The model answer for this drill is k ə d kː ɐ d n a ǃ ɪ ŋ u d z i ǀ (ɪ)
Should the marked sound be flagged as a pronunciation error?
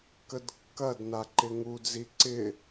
no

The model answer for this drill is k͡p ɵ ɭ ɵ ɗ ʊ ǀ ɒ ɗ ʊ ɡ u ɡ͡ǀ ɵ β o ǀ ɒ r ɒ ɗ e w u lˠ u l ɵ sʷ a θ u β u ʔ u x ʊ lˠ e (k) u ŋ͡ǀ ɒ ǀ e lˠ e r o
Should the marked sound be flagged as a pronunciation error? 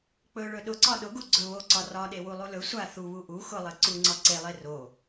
yes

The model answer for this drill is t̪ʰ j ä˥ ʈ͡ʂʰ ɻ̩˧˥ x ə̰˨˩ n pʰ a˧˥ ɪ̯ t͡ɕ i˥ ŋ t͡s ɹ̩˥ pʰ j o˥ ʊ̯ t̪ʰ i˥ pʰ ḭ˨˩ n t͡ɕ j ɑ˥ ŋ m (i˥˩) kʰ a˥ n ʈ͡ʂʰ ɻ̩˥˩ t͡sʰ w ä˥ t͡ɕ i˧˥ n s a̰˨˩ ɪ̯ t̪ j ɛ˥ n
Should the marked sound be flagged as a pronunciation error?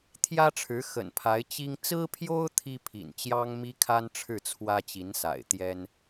yes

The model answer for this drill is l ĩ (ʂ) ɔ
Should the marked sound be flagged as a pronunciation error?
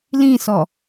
yes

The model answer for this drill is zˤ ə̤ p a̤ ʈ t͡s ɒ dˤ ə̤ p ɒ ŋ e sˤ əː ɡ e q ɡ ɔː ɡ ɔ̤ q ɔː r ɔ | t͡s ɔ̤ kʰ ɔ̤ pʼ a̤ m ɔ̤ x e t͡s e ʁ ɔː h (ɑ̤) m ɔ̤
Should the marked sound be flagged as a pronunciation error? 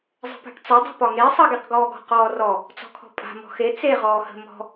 yes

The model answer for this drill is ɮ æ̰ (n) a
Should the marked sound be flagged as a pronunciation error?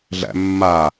yes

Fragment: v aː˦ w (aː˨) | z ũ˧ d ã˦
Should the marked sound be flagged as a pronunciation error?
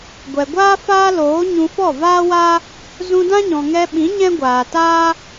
yes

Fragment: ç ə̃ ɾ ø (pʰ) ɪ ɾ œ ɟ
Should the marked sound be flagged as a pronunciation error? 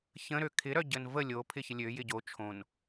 yes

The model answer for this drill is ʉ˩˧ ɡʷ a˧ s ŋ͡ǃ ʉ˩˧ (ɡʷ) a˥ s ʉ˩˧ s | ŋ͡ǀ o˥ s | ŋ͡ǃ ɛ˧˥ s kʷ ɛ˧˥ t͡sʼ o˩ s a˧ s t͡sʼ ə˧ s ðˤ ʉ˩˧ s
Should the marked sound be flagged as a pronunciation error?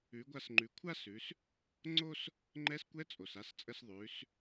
yes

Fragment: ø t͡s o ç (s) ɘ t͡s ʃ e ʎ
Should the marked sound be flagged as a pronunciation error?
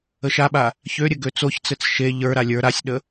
yes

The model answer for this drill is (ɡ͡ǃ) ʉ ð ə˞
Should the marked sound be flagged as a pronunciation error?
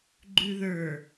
no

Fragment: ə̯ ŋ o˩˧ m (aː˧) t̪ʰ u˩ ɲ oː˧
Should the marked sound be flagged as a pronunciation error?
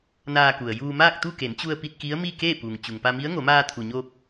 no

